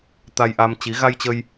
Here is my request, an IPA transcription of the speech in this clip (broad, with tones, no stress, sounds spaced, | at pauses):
t̪ a˧ j ʔ a˧ m t͡ɕ i˨˦ ɣ a˧ j t͡ɕ ə˧ j